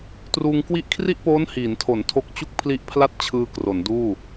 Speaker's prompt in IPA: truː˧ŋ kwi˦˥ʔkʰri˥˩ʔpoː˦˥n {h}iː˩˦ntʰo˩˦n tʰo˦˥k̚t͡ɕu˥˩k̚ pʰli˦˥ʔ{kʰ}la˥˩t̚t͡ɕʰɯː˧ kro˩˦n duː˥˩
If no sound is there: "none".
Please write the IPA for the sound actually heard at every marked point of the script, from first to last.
h, pʰ

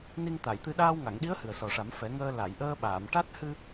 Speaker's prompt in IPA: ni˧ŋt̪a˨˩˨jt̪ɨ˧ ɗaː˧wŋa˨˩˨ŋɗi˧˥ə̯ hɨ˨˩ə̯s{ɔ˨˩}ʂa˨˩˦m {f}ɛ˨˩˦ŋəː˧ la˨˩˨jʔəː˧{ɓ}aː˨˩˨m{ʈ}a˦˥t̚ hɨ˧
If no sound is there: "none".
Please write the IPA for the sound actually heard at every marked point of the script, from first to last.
ɔ˨˩, f, ɓ, ʈ

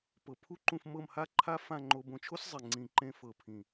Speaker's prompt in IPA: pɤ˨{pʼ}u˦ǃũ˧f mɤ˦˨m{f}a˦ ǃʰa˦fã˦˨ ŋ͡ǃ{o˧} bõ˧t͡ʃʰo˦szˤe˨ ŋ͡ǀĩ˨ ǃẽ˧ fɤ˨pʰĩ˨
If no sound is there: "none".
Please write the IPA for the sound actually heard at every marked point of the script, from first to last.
pʰ, h, o˧

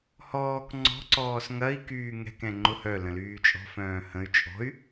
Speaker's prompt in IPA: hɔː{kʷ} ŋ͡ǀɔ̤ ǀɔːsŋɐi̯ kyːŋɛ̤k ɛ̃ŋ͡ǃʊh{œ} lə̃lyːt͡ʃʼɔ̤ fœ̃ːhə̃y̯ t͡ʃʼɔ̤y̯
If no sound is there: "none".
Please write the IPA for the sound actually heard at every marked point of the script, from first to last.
k, œ

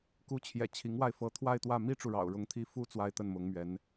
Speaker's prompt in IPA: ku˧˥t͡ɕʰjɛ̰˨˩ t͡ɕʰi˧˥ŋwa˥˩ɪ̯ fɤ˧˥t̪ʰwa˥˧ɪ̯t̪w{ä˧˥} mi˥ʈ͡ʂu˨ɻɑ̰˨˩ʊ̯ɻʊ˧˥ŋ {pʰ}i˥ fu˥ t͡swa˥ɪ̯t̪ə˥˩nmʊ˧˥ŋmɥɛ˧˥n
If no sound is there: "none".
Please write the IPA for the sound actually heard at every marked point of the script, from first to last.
ä˥˩, t̪ʰ

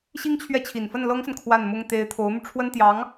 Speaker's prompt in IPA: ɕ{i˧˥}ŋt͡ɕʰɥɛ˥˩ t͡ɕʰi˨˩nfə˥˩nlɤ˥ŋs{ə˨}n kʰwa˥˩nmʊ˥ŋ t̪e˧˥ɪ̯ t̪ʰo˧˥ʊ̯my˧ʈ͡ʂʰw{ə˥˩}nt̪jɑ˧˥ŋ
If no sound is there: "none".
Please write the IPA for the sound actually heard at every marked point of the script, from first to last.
i˥, ə˨, ə˥

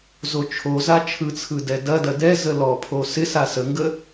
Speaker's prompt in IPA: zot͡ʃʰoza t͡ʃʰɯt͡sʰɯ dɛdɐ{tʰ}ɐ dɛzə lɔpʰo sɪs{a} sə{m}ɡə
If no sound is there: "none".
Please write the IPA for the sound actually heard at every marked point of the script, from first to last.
d, a, ŋ

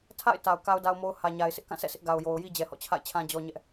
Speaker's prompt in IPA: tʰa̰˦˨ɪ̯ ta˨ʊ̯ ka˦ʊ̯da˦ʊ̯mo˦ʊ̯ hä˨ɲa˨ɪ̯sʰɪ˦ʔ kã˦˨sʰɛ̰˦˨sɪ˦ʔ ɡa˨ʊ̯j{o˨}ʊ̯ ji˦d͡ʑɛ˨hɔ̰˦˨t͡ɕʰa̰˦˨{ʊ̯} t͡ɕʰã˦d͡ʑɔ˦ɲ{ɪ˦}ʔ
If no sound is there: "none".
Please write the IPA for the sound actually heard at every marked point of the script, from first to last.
o˨, ɪ̯, ɛ˦

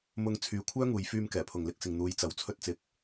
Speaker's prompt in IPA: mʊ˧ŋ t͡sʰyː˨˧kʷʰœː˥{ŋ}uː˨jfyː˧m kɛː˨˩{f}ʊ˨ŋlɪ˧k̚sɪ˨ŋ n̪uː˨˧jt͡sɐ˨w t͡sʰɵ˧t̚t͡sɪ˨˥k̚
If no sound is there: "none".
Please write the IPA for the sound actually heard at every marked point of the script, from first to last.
ŋ, pʰ

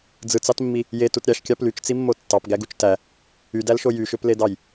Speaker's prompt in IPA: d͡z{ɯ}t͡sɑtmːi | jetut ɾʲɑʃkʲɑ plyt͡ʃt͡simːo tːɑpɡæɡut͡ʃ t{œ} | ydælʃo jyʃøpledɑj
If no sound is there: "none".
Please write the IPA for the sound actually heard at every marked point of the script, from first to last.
ɯ, æ

